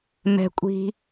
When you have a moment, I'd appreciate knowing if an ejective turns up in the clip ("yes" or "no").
yes